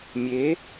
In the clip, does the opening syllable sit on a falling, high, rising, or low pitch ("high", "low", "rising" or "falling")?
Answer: rising